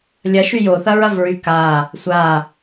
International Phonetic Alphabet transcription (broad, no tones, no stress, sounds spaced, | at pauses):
lʲ ɐ ʃ y j o θ ɐ ɹ ɐ v ɹ y k a | sʷ a